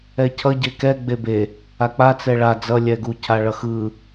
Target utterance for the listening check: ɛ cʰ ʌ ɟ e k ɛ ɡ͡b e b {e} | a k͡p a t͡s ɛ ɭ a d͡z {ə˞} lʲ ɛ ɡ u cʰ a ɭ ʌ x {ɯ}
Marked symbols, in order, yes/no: yes, no, yes

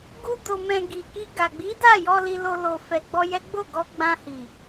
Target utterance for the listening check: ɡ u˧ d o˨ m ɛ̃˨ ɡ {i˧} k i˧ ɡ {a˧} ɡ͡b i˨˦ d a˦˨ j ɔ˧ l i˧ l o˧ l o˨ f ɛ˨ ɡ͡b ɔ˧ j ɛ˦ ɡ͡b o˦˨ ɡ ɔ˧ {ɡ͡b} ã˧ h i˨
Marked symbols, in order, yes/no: no, no, yes

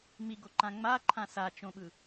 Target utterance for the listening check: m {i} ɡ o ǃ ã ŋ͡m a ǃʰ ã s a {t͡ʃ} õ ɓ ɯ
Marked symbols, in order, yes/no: yes, yes

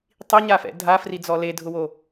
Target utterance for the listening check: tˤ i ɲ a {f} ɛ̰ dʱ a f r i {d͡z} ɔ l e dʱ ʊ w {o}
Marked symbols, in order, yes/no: yes, yes, yes

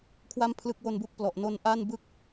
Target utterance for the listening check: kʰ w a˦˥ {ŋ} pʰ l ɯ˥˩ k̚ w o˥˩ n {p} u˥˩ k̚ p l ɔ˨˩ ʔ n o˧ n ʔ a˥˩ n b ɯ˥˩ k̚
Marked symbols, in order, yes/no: no, no

